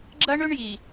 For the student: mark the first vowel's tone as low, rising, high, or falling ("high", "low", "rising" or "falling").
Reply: high